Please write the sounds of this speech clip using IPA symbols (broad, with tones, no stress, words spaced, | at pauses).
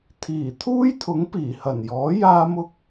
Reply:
t̪ʰiː˨˩t̪ʰuː˥jt̪ʰʊ˨˥ŋ piː˨˩hɐ˨˩njɔː˨˥ jaː˥mʊ˥k̚